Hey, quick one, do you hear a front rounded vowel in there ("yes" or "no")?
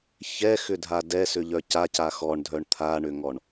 yes